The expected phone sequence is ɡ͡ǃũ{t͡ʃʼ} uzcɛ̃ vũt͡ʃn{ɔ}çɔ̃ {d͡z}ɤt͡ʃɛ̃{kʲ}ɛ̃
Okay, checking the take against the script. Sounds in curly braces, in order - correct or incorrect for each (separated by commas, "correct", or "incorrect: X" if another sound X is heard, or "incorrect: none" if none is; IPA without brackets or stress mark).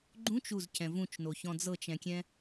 incorrect: t͡ʃ, incorrect: o, correct, correct